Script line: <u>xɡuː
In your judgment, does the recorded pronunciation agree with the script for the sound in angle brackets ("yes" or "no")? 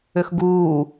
no